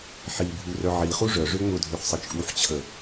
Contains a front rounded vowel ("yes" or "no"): yes